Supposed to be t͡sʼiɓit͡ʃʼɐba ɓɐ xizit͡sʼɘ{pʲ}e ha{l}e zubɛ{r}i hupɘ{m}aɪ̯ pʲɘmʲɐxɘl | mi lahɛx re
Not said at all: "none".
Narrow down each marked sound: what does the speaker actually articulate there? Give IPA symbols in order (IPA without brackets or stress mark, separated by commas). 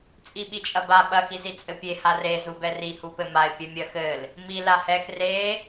pʲ, r, r, m